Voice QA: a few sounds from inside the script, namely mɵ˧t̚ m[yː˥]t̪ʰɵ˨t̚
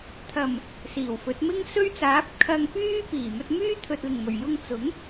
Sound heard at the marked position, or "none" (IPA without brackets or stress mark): yː˥